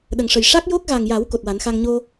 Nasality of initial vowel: oral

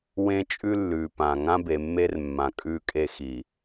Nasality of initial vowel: nasal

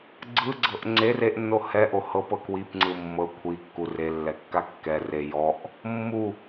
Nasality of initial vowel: oral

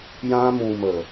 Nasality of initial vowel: nasal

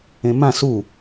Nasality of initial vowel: nasal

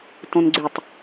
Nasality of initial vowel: nasal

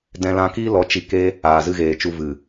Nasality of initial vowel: nasal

